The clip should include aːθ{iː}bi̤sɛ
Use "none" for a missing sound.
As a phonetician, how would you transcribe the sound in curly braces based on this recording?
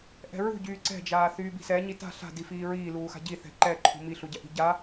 yː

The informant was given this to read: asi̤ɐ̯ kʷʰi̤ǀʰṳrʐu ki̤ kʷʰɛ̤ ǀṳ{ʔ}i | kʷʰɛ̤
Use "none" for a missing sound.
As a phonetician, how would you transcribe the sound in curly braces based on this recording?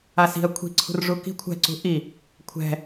ʔ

